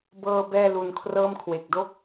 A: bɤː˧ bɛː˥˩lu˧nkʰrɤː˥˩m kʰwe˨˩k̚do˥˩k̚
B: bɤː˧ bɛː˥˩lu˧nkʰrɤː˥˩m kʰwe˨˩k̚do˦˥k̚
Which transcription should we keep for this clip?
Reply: A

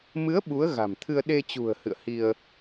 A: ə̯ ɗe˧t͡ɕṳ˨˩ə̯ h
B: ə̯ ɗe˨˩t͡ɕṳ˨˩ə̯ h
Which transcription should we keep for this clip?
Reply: A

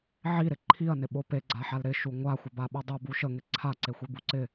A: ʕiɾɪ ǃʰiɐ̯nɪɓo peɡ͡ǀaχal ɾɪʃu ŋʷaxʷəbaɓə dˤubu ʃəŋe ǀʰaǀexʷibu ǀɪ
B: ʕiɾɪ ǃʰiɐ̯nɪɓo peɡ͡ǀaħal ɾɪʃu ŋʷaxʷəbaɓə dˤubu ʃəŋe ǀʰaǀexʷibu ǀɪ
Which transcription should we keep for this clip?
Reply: B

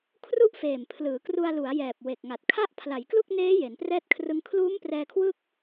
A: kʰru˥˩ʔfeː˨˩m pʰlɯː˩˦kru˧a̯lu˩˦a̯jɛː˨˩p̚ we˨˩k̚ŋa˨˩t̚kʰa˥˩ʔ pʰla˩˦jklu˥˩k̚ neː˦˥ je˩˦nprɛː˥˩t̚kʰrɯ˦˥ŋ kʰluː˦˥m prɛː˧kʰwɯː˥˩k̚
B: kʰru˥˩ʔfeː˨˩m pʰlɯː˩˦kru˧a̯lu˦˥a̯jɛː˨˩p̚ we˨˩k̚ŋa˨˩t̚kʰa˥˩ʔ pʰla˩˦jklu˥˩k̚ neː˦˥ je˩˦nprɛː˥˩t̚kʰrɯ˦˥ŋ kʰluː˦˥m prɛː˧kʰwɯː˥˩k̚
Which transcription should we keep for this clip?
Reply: A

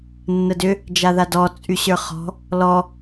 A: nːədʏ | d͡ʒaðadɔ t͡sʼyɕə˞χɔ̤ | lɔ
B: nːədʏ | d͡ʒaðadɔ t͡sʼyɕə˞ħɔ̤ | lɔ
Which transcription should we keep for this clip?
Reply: A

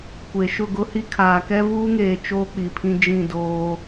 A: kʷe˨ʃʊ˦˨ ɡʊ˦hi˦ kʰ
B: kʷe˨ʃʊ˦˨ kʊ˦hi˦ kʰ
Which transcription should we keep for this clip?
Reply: A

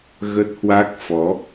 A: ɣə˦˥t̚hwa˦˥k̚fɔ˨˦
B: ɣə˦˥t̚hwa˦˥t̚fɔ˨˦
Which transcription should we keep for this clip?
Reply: A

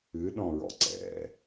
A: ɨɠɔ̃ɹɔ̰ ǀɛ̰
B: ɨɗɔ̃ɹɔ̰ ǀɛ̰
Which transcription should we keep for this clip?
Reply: B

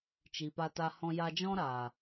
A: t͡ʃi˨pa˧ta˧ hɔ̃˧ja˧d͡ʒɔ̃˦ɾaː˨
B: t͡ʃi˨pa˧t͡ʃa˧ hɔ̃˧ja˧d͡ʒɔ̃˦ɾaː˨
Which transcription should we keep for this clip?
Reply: A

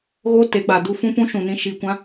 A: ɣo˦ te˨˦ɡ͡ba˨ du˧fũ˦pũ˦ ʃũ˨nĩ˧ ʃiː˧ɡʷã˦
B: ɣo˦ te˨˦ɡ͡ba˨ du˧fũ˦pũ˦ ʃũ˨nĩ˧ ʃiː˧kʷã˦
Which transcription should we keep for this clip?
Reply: B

